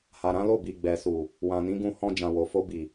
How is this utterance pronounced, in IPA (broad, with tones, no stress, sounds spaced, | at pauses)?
h a˨ ɾ ã˨˦ l o˦˨ b i˨ ɡ͡b ɛ˨ s u˨ | w ã˨ n ĩ˨˦ ɡ ũ˧ h ɔ̃˧ d͡ʒ ã˨ w o˨ f o˧ b i˨